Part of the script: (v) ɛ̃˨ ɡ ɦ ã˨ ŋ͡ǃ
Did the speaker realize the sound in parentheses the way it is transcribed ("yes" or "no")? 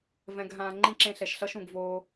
yes